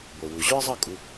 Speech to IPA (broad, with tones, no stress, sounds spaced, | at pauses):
b o˩ w u˩ ʑ ɵ˥ ə̯ zˤ ʌ˥˩ kʼ u˧